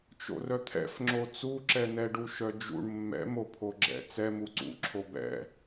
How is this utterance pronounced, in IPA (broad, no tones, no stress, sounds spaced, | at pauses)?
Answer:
t͡ʃ o̰ r œ t̪ʰ ɛ̰ f ŋ͡ǁ o t͡s u ǁ ɛ n ɛ ɖ u ʃ œ d͡ʒ ṵ ɳ mː ɛ̰ m o pʰ o ɡ͡ǁ ɛ̰ t͡s ɛ m u ǀ ṵ ǁʰ o b ɛ̰